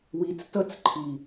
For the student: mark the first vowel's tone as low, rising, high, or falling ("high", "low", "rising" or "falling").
low